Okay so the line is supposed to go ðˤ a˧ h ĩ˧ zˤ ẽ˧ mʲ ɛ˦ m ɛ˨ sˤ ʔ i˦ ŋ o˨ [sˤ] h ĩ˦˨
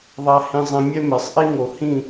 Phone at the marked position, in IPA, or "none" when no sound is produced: none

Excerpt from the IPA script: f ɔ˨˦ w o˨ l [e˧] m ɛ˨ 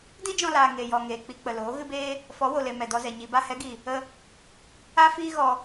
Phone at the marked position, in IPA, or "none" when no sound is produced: e˨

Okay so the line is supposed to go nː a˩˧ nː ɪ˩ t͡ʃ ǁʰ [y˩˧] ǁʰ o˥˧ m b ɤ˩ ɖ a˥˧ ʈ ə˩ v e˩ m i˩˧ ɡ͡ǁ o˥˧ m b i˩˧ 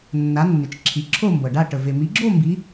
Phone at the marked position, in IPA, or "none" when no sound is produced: i˩˧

